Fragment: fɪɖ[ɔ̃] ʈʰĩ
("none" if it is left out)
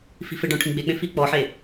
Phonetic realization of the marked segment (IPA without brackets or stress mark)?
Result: ɔ̃